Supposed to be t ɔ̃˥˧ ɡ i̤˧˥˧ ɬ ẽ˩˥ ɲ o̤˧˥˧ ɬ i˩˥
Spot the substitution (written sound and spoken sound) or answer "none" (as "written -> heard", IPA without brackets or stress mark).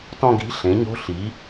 none